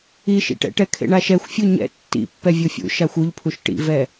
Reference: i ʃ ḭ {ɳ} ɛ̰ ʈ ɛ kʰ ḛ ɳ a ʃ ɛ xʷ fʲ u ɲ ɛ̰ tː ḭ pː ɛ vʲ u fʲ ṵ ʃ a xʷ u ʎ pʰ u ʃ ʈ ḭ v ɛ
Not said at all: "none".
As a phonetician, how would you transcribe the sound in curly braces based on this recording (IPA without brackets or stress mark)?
ʈ